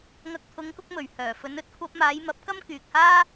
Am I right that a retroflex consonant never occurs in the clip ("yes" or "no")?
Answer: yes